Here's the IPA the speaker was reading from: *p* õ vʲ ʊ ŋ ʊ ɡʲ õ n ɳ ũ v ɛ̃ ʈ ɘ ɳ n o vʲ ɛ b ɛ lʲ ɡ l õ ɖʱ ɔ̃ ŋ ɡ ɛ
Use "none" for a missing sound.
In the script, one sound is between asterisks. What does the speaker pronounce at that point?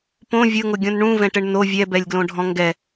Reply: p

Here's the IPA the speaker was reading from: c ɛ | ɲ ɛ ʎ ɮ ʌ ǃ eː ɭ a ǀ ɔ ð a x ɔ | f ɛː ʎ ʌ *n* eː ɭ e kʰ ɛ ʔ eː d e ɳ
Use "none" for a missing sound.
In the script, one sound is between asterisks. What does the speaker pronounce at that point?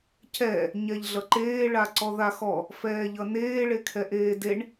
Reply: n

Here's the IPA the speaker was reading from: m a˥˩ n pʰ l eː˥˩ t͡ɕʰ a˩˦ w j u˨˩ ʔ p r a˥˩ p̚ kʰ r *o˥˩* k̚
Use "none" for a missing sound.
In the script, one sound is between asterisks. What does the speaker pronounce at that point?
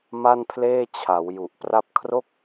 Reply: o˥˩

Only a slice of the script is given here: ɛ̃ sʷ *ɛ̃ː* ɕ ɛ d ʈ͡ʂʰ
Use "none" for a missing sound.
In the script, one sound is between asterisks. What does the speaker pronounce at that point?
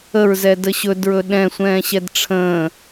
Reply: ɛ̃ː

